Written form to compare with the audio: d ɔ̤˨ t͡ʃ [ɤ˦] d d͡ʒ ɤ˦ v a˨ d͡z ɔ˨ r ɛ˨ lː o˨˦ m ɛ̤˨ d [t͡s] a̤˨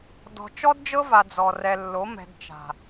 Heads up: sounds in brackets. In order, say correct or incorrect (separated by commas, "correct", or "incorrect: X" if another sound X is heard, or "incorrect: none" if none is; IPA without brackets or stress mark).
incorrect: ɔ˦, incorrect: t͡ʃ